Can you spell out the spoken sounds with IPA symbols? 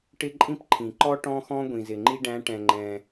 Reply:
ʈɪ˥ ǃʼĩ˥pǃʰĩ˩ǃɔ˥ ʈɔ̃˥xɔ̃˥ ɡʷĩ˩zɪ˩ŋ͡ǃi˥ ɖæ̃˧˥ʈɛ̃˩ ŋ͡ǃɛ̃˩

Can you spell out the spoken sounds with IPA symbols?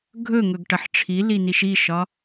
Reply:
ɡʱɵŋɵɡ ʈɐħʈ͡ʂʰili niʃiʃɒ

